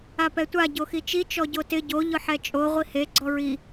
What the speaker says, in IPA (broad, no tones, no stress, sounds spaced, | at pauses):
a p ɛ tʷ a ɟ o x i t͡ʃ i t͡ʃ ɔ ɟ o t ɪ ɟ o ʎ ʊ ħ ɛ t͡ʃʼ o ʁʷ i h e ɡ͡ǀ ɔ ɹ i